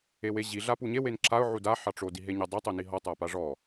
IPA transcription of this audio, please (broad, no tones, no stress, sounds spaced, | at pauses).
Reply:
e w e ʑ i ɮ a p u ɲ e w e n ǁ a ʊ̯ ʕ u d a ħ ɑ ʈ͡ʂ o d i ɦ e ɲ a dˤ a tˤ o n i ɦ ɔ tˤ a p a ʐ ɔ